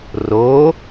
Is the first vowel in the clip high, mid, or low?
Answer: mid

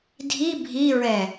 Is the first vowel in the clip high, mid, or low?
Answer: high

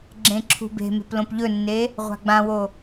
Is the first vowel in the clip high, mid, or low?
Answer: mid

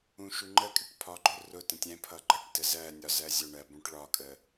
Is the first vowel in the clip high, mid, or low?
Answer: high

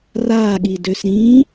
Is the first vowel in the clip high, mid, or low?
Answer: low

